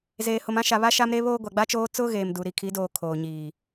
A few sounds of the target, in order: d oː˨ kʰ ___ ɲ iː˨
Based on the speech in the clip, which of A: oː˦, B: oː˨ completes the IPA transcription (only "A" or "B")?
B